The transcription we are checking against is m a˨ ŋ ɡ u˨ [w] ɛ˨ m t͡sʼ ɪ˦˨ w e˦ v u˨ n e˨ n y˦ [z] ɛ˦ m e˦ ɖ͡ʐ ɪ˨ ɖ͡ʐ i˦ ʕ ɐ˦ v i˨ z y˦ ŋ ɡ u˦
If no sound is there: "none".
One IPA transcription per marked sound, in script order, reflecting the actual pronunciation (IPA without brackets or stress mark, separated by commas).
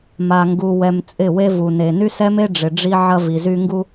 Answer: w, s